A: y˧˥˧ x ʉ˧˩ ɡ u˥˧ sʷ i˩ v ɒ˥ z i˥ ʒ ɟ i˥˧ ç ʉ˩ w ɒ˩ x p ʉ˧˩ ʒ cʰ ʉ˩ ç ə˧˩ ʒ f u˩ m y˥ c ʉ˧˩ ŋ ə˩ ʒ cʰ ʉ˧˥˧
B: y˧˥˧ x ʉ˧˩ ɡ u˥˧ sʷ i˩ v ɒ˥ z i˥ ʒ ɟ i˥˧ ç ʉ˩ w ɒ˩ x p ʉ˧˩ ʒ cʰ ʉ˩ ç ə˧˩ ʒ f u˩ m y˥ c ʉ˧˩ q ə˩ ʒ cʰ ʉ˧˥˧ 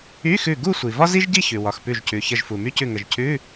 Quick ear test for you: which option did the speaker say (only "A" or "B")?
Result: A